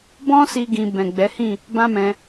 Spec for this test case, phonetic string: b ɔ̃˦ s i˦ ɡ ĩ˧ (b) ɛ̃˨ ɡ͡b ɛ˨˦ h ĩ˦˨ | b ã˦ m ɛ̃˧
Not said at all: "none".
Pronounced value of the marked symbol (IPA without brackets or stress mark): b